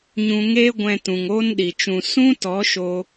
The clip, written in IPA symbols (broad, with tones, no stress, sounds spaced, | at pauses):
ɲ ũ˧ ŋ eː˦ ɡʷ ɛ̃˧ t ũ˨ ŋ oː˦ n ɗ i˨ t͡ʃ ũ˧ s ũ˦ t ɔ˨˦ ʃ o˧